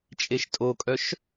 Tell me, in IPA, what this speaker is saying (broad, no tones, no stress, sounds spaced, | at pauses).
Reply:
t͡ʃʼ e ʃ tʼ o kʼ œ ʃ